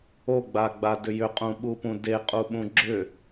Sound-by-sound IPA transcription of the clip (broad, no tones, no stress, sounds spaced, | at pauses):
o ɡ͡b a ɡ͡b a d ʏ j ʏ qʼ ũ ɓ u p ũ d e qʼ u ɓ ũ ɡ͡ǁ ʏ